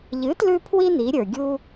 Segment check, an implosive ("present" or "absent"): absent